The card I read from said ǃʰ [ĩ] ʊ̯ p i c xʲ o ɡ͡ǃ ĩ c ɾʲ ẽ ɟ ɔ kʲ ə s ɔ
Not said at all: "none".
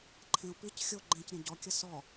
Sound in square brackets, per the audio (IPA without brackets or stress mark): ẽ